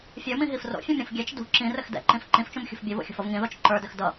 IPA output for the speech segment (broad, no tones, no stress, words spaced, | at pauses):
fʲə˞mĩɦif ro̰fʲũmɾʲũf ɡʲɛt͡ʃ dṳ ǁĩrɘx dɛ̰ǃĩf ǃĩft͡ʃũmxʲṳf bʲovo̰xʲo̤fʌv ŋĩðot͡ʃ ǃə˞dɘx dʌ